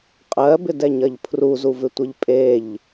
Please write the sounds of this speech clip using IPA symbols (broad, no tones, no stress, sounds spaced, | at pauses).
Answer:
qʼ ɜ b ɪ d ɛ ɲ ɐ ʎ pʰ r u z u v ɪ tʷ e ʎ pʼ e ʎ